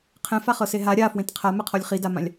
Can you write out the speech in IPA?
qʰɛ̃faχɤse ɦa ɾʲa fwẽtqʰamɛqʰɔlʲ χidamãlʲ

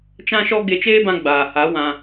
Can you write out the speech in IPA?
t͡ʃã˦ʃɔ˦ ɡe˧t͡ʃeː˦bã˧ ɡ͡baː˨ha˨˦ wã˧

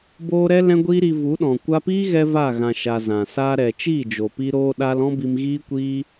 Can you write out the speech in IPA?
boː˧ɾɛ˦ lɛ̃˦ɡʷiː˦ɾi˧ vu˨˦ɗɔ̃˨ kʷa˧piː˦ɣɛ˧ va˦˨ɣã˨ʃa˨ zã˨ saː˧ɾɛ˨ t͡ʃiː˦˨d͡ʒo˨pi˧ ɾoː˧ɗa˧l ɔ̃˦bi˧mɣiː˦kʷiː˦

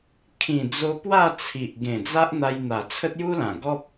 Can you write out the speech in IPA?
kʰĩ˨˩d͡zo˧pwa˥˧ t͡sʰi˨ʔ ɡẽ˨˩d͡za˦ʔ n̪a˧jn̪a˨˩ t͡sʰə˦t̚ju˦lã˨˩ ɡɔ˦p̚

